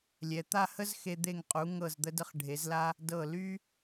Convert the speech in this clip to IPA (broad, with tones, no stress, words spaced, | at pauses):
lʲɛ˩˧t̪a˥˧ hə˥zxe˧ d̪e˧˩ŋqʼu˩˧ ŋɤ˧˩zd̪ə˧də˧χ ɖʱe˩˧zla˧ | dɤ˧˩ ly˥